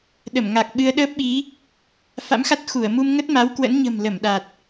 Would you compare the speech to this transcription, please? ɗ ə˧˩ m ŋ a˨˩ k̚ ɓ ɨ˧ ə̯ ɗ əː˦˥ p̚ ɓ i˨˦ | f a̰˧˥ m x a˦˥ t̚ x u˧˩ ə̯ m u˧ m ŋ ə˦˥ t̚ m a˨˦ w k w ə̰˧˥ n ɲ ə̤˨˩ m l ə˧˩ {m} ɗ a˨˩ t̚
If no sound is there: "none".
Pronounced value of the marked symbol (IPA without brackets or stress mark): m